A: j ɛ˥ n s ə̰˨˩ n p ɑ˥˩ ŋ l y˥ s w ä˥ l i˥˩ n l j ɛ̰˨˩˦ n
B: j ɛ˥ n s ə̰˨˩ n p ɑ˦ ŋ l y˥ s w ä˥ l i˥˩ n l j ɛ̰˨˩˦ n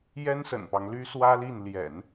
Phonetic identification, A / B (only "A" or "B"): B